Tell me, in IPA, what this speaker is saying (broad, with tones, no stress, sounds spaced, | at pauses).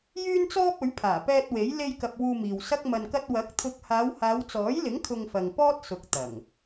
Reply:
j yː˥ n t͡s ɔː˥ p̚ ɵ˨˥ ɥ pʰ aː˨˩ p ɛː˧ t̚ w e˨˥ j l e˧ j k ɐ˨ p̚ w uː˧ m iː˨ w s ɐ˥ k̚ m ɐ˧ n k ɐ˥ t̚ w ɐ˨˥ k̚ t̪ʰ ʊ˧ k̚ h aː˨˧ w h aː˨˧ w t͡s ɔː˨˥ j l ɪ˨˥ ŋ kʰ ʊ˧ ŋ f ɐ˨ ŋ p ɔː˥ t̚ s ʊ˨ k̚ t̪ ɐ˨˩ ŋ